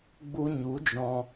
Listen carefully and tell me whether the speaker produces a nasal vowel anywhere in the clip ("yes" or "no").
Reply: yes